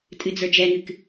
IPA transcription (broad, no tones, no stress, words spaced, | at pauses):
tʼɨd͡zə˞d͡ʒɛŋɨk